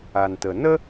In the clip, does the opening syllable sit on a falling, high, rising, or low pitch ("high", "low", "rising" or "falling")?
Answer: low